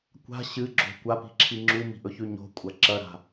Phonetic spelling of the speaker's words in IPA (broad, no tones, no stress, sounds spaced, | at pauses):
kʷ a̤ ɕ ɨ ɡ͡ǁ o̤ kʷ a p i̤ ǁʰ i ŋ͡ǁ u m i̤ ʔ ɵ ç ʉ ɲ o̤ kʷʼ ɐ ǁ ɐ ɾ a̤